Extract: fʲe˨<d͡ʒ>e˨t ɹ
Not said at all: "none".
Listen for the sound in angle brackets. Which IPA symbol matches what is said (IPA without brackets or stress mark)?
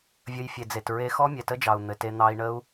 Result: d͡z